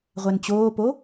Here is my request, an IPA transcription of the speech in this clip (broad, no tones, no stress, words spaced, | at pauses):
ʁʷɛnt͡ɕoːpo